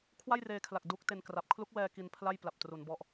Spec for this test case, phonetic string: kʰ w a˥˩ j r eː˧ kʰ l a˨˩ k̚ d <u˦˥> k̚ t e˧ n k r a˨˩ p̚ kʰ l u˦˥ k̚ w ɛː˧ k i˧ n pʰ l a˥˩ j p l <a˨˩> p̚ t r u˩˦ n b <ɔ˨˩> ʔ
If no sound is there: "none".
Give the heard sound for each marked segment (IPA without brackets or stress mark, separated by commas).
u˦˥, a˨˩, ɔ˦˥